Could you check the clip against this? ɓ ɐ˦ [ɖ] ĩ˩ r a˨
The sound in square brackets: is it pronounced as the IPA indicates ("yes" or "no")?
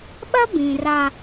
no